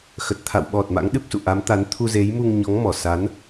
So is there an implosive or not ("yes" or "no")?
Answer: yes